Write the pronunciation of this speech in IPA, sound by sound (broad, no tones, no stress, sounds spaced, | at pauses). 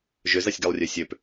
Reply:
ʒ ʏ z ɐ sʲ ɡ ɛ lˠ rʲ ø sʲ ø p